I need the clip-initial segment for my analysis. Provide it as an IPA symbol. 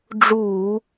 ɖ͡ʐ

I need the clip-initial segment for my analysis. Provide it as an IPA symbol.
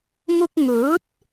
ŋ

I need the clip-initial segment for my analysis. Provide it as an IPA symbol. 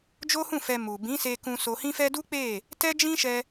d͡ʒ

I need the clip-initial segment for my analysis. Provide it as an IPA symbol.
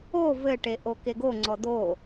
o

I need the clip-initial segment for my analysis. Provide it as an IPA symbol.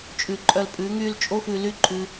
t͡ʃʼ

